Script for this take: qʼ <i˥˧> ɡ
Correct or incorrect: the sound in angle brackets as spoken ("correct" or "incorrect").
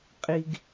incorrect